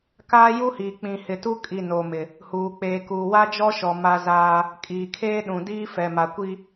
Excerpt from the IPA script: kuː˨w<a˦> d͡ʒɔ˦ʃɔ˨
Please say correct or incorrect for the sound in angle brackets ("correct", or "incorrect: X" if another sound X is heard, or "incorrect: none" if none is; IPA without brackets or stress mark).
correct